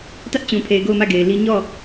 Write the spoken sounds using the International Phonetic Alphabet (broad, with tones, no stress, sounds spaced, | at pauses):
t ä˦ ʔ t͡ɕ ũ˨ pʰ e˨ ɪ̯ ɡ o˦˨ ʊ̯ m ä˦˨ ɡ e˨ ɪ̯ l i˦ ɲ ɔ˦˨